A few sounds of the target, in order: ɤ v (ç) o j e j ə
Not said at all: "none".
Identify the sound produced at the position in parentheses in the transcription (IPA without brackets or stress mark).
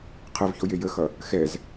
ç